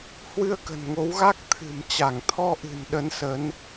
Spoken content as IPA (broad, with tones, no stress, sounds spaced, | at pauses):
h w ɨ˧ ə̯ k ə̤˨˩ n ŋ o˨˦ w ɣ a˦˥ k̚ t̪ʰ ɨ̤˨˩ m t͡ɕ a˧˩ ŋ t̪ʰ ɔ˧ ʔ ɨ̤˨˩ n ɗ ə˨˦ n s ə˨˦ n